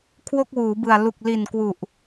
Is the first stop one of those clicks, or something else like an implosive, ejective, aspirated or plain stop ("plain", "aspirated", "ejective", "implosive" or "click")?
aspirated